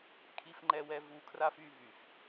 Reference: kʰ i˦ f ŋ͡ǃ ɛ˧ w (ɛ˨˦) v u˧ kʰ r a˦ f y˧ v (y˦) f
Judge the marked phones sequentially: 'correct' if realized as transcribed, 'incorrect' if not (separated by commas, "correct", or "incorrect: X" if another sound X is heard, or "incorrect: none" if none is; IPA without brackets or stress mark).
incorrect: ɛ˧, incorrect: y˨